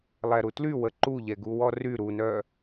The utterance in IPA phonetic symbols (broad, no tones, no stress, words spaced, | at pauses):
lˠɛɾutly wəǃuʎɛ ɡuwɔry ɾunœ